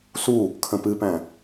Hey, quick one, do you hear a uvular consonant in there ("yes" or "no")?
no